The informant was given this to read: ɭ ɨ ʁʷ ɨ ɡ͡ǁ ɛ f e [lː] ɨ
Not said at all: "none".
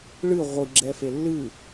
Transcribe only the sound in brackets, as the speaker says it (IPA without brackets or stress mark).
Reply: lː